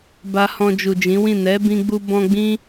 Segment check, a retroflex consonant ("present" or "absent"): absent